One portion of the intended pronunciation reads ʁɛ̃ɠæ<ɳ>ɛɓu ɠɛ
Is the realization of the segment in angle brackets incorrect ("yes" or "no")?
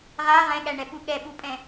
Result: no